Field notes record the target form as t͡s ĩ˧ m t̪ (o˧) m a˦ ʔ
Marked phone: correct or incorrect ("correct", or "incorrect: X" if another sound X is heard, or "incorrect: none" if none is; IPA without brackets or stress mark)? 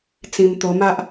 correct